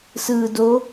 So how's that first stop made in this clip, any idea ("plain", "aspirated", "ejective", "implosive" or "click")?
plain